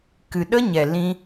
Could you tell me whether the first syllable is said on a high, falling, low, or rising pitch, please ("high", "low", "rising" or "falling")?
low